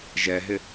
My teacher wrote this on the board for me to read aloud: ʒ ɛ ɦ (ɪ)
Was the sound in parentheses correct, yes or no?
yes